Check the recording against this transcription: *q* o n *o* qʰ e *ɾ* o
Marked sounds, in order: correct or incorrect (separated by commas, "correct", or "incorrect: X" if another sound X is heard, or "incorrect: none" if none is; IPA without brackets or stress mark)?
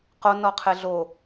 correct, incorrect: ɔ, incorrect: ɮ